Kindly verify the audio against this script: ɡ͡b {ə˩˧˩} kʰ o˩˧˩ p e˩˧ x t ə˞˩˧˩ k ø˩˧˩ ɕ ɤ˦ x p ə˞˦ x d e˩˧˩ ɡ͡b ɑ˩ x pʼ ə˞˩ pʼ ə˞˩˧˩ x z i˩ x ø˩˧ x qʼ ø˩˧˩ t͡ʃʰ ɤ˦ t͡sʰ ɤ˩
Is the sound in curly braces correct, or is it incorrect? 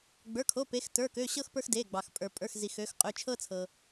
incorrect